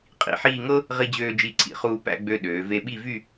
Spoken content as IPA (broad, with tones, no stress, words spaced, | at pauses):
qʼḭ˧ħiː˥˧ ŋɤ˥ | ʁi˧d͡ʑøː˧d͡ʒi˧˩ǀʰḭ˧˩ χuː˧pæ̰˥˧ɡ͡bø˧ ɗøː˩˧ ve˧ɓi˥˧vy˥˧